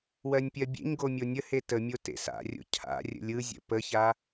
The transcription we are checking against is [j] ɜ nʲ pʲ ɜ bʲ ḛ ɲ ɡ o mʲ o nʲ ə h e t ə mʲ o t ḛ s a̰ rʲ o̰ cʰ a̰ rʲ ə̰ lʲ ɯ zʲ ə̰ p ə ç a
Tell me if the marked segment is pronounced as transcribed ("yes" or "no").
no